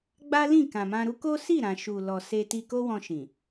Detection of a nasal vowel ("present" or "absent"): present